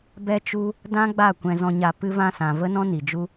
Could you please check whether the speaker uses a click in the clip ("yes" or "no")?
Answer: no